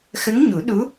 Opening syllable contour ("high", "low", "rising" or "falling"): rising